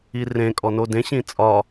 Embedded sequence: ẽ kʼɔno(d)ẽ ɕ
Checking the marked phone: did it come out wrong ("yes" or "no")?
no